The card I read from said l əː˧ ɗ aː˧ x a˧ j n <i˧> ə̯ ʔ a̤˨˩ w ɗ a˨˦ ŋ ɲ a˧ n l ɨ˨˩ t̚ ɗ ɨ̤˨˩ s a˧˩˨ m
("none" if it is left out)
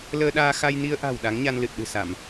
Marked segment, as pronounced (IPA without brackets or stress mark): i˧